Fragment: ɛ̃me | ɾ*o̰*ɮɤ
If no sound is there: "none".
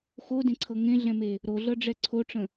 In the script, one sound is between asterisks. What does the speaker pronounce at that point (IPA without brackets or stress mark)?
o